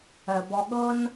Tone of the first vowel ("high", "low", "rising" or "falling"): low